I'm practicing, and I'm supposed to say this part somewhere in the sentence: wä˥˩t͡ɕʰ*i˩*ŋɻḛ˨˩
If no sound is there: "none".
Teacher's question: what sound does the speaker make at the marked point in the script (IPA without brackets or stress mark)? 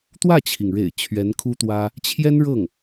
i˩